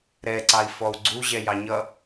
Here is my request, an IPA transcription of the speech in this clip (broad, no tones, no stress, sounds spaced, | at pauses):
ɾ ɛ ǀ ɑ i̯ f ɔ u̯ ɡ͡ǀ u ʑ ɛ j ɑ ɲ ʌ